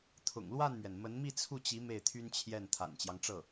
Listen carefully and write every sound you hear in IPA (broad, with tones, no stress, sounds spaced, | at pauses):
t̪ʰ ʊ̰˨˩ ŋ l w a˥˩ n m ɥ ɛ˩ n m ə˧˥ n m i˥˧ t͡sʰ u˥˩ t͡ɕ i˧˥ m e˥˩ ɪ̯ t̪ʰ y˥ n t͡ɕʰ j ɛ˥˩ n t̪ʰ a̰˨˩ n t͡ɕ j ɑ˦ ŋ ʈ͡ʂ ɤ˥˩